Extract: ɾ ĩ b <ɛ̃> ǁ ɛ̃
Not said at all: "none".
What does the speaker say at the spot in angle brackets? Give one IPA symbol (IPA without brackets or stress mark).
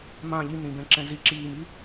ɛ̃